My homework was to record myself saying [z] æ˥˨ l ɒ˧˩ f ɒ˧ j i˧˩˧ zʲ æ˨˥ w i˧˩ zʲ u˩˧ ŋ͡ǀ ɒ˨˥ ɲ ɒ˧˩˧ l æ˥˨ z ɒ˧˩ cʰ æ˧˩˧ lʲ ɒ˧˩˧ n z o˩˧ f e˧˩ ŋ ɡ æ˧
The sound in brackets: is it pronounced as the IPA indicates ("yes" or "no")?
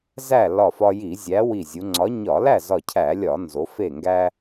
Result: yes